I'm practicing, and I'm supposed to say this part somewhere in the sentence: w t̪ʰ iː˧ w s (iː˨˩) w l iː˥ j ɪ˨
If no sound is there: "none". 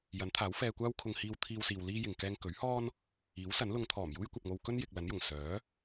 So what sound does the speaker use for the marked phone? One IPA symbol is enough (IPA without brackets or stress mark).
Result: iː˧